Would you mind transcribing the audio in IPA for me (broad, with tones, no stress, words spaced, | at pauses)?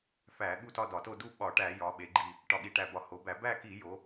fæ˧˩˧ ɠu˥˧tɒ˥˧dɒ˧˩˧to˥˧ du˥˧ ɓɒ˧˩˧ʈæ˧˩˧jɒ˩˧ɓe˩˧ ɡ͡ǃi˧˩ | ʈɒ˧˩ɠi˧˩ʈæ˧˩bɒ˧˩˧ ho˩˧bæ˧˩˧ bæ˥˧ki˧˩˧jo˩˧